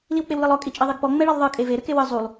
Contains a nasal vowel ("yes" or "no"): no